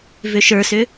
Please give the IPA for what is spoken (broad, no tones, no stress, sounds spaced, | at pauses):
v ʏ ʃ ə˞ s ʏ